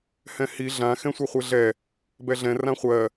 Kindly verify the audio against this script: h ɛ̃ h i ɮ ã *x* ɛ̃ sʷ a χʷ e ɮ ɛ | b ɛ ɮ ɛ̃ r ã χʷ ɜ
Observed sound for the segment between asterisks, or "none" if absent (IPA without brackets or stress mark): x